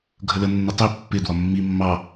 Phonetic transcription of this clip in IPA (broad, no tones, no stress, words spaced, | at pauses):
ɡʱələnːə tˤi pːɪ dwɒmːi mːɑ